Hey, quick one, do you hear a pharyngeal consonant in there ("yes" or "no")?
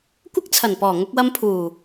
no